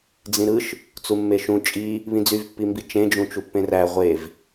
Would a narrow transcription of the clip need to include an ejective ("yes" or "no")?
yes